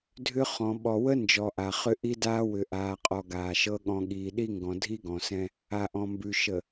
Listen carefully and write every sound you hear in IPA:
dʱ ʏ˦ χ ɔ̃˨ ɓ ɔ˨ w ə˦ n d͡ʒ ɔ˨ ʔ a˨ χ ʏ˦ ʔ i˦ d aː˦ w ʏ˨ ʔ aː˨ qʼ ɔ˨ ɡ aː˨ ʃ ɤ˦ ɠ ɔ̃˨ ɠ iː˨ ɗ i˦ ŋ ɡ ɔ̃˨ dʱ i˦ ɡ ɔ̃˨ s ɛ̃˦ | a˨ ʔ ɔ̃˨ m b ʉ˨ ʃ ə˨

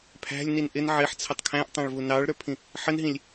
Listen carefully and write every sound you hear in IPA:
pʰ æ̤ lʲ n i n ʔ ɪ n ʕ ɪ ħ t͡sʰ ə tˤ kʰ æ̃ ʔ tˤ ɑ̃ ɭ v u n ɑ ɭ ɾ ə˞ pʰ ĩ | ħ ə n ɦ ĩ lʲ

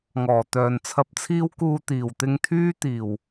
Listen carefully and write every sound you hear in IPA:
ŋ ɔː˨˩ t̪ œː˨ n t͡sʰ ɐ˧ p̚ t͡sʰ iː˥ w k uː˧ t̪ iː˨˩ w t̪ ɪ˧ ŋ t̪ʰ yː˥ t̪ iː˨˩ w

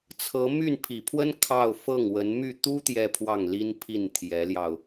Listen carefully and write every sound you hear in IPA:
t͡sʰ ɤ˧˥ m y˥˩ n pʰ i˨˩ pʰ w ə˥ n kʰ ɑ˥˧ ʊ̯ f ɤ˥˩ ŋ w ə˧˥ n m y˥˩ t̪ u˥ t̪ j ɛ˥˧ pʰ w ɑ˥˩ ŋ l i˥ n pʰ i˥˩ n t̪ʰ j ɛ˧˥ l j ɑ˧ ʊ̯

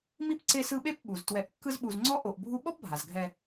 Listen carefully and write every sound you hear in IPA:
m i˥ p ǀ e˦ s ɯ˦ ɓ e˥ p ɓ u˩ z t w ɛ˨ ʔ kː ɯ˦ z ɓ u˨ z ŋ͡ǀ ɔ˥ ʔ o˨ ʔ bʱ u˦ ɓ ɔ˦ p bʱ a˩ z ɡʱ ɛ˨

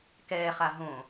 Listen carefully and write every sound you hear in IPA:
k ɛː χ a ɦ õ

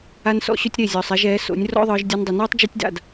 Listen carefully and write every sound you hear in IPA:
a˦ n s ɔ̰˦ ɕ ɵ˦ tʲ ɾ e˦˨ zʲ ɔː˨ sˤ ɛ˧ ʒ ɛː˨˦ s o̰˨˦ nʲ r ɔ̰˦ ðˤ ɯː˧ ʒ dʲ ɔ˧ n dˤ ɵ˨ n ɔː˦ tˤ d͡ʒ e˦ tʲ d a̰˦˨ d

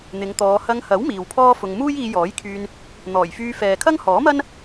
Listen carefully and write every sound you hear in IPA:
n̪ ɪ˨˧ ŋ t̪ ɔː˨˧ h ɐ˧ ŋ h ɐ˨˥ w m iː˨ w pʰ ɔː˥ f ʊ˧ ŋ m uː˥ j iː˧ j ɔː˨˥ j kʰ yː˧ n | n̪ ɔː˨˩ j f yː˧ f ɛː˨ kʰ ɐ˥ ŋ h ɔː˨˥ m ɐ˥ n

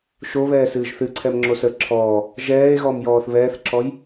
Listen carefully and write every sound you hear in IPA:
ʃ o β ɛː s ɨː ʒ θ ɨ ǀʰ ɛ m ŋ͡ǁ o s ə ǁʰ ɔː | ʒ ɛː e̯ ɣ ɔ m j ɔː θ β ɛː θ ǁ ɔ j

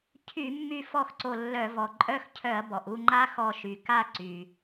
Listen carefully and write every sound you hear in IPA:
cʰ y˧˩˧ mː y˧˩ f ɔ˥˨ x ǀ o˧˩ lː œ˧˩˧ v ɔ˩ ǃʼ œ˥˨ x cʰ œ˧˩˧ ɐ̯ b ɔ˩ ʔ u˥˨ ŋ͡ǃ a˦ x ɔ˧˩ ʃ y˩ k a˥˨ ǀ y˩

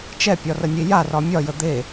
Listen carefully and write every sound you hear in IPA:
t͡ʃ ɛ pʲ ɒ r ə nʲ e j a r ɒ mʲ ɒ j ə d̪ e

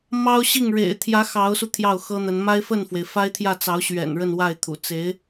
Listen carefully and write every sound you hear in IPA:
m ɑ˥ ʊ̯ ɕ i˥˩ ŋ ɻ ḛ˨˩ ɪ̯ t̪ʰ j ä˧˥ x ɑ˧˥ ʊ̯ s u˧ t̪ʰ j ɑ˥˩ ʊ̯ x ɤ˥ n̪ ə˧˥ n m a˥ ɪ̯ f ə˥˩ n f w e˩ ɪ̯ f a˥ ɪ̯ t̪ʰ j ä˥˩ t͡s ɑ˧˥ ʊ̯ ɕ ɥ ɛ̰˨˩ n ɻ ə˥˧ n w a˥˩ ɪ̯ t̪ʰ ṵ˨˩ t͡s e˧˥ ɪ̯

